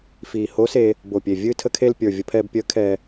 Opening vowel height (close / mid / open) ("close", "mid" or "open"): close